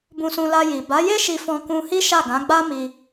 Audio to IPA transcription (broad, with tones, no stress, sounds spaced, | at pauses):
b ũ˧ s ũ˧ l a˧ j i˨ b a˨˦ j e˦ ʃ i˧ f ɔ̃˧ k ũ˧ h i˦ ʃ a˦˨ ɡ ã˨˦ ɡ͡b a˦ m i˧